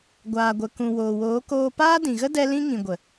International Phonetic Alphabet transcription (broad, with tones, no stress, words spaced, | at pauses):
ɡʷaː˨ɡʷə˨kũ˨ woː˨woː˨˦ koː˧paː˦dĩ˨ɣə˦ dɛ˦lĩ˦ ŋĩ˨ɡʷə˨